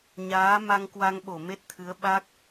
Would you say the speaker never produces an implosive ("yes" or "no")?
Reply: no